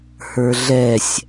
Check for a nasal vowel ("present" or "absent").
absent